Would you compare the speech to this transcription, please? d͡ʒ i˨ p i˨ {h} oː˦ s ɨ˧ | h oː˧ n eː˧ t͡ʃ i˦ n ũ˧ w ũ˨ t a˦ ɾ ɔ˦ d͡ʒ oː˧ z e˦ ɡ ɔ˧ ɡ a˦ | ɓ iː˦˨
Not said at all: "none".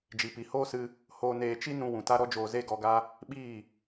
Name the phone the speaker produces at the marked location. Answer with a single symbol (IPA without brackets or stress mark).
h